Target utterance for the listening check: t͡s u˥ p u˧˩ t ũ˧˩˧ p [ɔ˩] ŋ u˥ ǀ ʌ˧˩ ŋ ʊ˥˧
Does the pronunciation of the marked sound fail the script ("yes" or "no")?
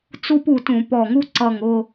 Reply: yes